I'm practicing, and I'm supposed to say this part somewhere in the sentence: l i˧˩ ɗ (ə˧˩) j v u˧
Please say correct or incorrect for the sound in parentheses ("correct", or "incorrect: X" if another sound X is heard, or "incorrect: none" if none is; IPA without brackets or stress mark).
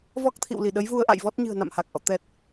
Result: incorrect: ə˨˦